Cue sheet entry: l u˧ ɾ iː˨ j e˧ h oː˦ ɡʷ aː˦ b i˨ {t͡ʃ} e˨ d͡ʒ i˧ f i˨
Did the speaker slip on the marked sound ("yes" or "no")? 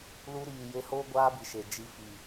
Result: yes